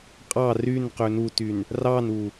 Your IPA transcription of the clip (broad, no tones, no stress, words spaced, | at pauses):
qʼɑ rynqø nutyn | rɑnu